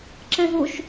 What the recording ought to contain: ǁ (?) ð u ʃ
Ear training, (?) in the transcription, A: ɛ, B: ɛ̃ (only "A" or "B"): B